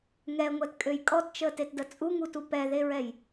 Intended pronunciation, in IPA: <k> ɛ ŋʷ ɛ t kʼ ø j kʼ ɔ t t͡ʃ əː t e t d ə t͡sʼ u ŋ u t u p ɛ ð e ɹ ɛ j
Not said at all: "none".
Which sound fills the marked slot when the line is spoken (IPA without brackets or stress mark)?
ŋ